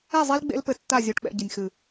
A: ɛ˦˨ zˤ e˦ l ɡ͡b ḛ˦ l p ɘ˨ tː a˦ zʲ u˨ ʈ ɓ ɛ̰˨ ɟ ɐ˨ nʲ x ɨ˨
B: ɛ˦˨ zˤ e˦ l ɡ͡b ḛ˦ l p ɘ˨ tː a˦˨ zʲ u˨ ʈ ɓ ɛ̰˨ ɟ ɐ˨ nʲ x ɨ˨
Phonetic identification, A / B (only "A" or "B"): B